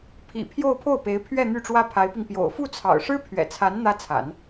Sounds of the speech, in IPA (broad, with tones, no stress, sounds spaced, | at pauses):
pʰ ḭ˨˩ pʰ j o˥˧ ʊ̯ pʰ o˥˩ ʊ̯ p e˧˥ ɪ̯ pʰ ɥ ɛ˥˧ n̪ y˥˩ ʈ͡ʂ w ä˥ pʰ a˧˥ ɪ̯ p i˧ ŋ p j o̰˨˩ ʊ̯ f u˥˩ t͡sʰ ɑ̰˨˩ ʊ̯ ʂ ɻ̩˥ pʰ ɥ ɛ̰˨˩ t͡sʰ a˧˥ n n̪ ä˥ t͡sʰ a̰˨˩˦ n